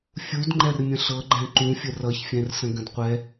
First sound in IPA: fʲ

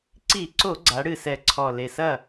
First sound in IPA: ǀ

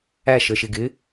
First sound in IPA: æ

